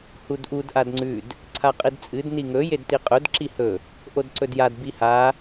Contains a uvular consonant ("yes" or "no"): yes